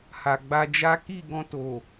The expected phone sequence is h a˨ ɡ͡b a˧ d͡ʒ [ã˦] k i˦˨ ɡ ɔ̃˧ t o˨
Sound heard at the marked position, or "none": a˦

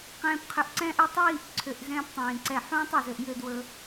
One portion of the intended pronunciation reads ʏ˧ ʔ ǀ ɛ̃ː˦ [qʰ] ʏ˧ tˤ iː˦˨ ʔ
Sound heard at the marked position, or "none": ʔ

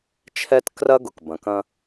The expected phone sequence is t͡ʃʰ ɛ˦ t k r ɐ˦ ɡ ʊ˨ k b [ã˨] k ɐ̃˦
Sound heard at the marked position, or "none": ɐ̃˨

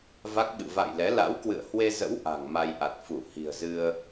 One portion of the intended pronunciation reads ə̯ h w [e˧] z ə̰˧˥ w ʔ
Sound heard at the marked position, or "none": e˧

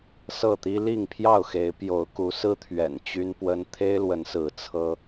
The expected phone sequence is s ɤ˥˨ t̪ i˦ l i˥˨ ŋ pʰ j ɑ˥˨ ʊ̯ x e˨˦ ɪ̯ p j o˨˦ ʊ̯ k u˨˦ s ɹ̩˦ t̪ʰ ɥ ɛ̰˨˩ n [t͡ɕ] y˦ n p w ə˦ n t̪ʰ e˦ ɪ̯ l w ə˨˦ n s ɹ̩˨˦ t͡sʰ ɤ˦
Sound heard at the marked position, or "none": t͡ɕ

